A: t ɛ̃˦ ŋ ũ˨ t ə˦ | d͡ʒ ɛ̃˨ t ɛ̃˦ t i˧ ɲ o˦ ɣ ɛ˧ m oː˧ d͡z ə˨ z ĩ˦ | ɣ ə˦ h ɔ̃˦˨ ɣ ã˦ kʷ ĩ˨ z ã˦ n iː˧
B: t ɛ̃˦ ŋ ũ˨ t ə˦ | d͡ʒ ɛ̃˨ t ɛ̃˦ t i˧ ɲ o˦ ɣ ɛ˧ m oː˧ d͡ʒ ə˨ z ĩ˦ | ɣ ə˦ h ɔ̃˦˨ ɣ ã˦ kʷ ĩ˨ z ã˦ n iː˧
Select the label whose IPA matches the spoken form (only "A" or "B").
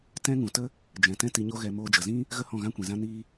B